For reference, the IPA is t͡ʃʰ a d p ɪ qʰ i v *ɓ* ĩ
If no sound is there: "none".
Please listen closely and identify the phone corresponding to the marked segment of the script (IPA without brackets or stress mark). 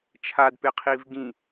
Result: ɡ